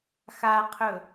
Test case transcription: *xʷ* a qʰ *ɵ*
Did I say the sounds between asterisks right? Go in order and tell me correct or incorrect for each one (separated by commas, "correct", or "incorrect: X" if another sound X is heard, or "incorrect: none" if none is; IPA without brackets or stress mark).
incorrect: x, correct